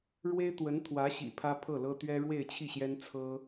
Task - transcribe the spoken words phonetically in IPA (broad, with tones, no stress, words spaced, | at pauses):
ɻwe˥ɪ̯t̪wə˧˥nt̪ʰwä˧˥ɕḭ˨˩ pʰä˥pʰɤ˥˩lɤ˥ t̪ɥɛ˥ɻwe˥˧ɪ̯t͡ɕʰi˥˩ɕjɛ˥n t͡sʰɤ˥